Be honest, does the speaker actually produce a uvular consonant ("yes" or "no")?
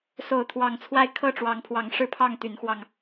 no